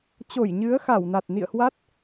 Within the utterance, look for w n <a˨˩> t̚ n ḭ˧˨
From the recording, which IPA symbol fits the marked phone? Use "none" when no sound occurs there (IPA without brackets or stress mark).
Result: a˨˩